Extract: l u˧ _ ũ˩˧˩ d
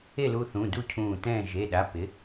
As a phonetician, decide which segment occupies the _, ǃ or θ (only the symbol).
θ